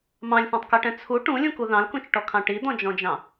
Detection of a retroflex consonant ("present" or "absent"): present